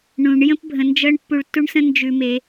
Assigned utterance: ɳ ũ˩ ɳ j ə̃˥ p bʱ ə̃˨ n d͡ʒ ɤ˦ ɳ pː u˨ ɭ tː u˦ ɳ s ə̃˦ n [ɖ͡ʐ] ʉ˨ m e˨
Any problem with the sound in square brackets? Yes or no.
yes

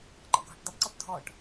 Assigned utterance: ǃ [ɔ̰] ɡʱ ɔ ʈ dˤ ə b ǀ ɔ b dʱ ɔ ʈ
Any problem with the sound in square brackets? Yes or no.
no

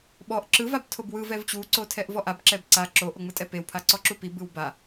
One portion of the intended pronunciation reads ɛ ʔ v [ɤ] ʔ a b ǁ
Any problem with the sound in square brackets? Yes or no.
yes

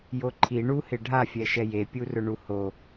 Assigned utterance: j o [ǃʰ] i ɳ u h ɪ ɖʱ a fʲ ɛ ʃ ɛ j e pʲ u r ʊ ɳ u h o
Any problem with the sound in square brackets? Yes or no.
no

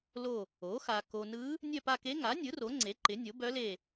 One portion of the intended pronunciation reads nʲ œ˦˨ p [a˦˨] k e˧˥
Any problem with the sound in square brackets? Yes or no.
no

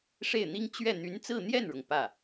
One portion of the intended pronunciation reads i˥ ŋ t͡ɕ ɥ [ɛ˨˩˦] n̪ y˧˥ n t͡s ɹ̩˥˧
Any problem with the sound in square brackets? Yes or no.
yes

